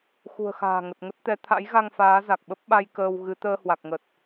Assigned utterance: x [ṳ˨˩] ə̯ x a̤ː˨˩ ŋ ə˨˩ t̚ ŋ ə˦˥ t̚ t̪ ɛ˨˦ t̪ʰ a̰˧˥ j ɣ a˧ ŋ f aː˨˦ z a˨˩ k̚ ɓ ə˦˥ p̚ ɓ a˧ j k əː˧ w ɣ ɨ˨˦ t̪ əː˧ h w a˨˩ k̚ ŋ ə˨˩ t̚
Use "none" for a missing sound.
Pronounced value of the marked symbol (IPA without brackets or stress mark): ṳ˨˩